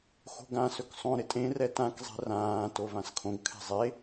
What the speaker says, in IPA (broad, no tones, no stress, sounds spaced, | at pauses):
x o̤ ɡ ã s ɵ k sˤ õ ɾ ɪ tʼ ẽ r ɛ t ã k zˤ ɛ̤ r ãː t o v ã s kʰ õ ɡ kʰ ɛ̤ zˤ e